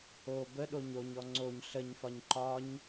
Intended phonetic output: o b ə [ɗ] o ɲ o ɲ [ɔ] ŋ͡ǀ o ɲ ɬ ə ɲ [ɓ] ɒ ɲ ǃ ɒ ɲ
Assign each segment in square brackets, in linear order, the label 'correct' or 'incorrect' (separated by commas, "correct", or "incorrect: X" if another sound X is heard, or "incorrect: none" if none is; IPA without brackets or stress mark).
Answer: correct, correct, incorrect: f